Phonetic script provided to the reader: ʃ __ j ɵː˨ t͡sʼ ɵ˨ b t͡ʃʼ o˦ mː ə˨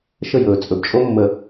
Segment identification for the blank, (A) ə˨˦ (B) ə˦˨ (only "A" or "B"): B